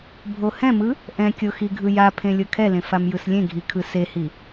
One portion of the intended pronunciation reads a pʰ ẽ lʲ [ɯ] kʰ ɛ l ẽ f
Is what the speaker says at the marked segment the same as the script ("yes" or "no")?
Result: no